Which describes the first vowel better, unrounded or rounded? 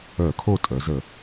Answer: rounded